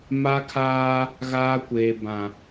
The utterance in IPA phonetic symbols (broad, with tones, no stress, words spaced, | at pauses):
ma˦kʰaː˦ | ɣaː˦kʷeː˨bã˨